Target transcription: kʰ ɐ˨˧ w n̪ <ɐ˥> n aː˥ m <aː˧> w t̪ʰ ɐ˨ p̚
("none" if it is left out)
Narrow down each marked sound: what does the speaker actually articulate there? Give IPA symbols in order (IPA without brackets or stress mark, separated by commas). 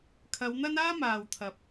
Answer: ɐ˥, aː˨